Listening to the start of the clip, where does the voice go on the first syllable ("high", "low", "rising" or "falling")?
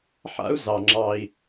high